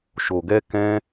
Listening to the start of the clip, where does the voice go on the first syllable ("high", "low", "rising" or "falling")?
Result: low